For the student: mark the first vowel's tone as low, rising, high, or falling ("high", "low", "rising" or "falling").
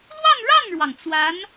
falling